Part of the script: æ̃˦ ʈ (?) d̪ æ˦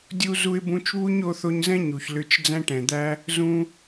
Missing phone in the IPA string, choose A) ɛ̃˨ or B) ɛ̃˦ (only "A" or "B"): A